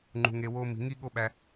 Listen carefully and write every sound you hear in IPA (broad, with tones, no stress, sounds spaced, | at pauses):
ŋ͡ǃ ṳ˧ ŋ e˧ w o˦ m i̤˧ ŋ i˦ ɠ o˦ ɓ æ˧